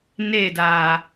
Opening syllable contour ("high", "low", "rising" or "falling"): falling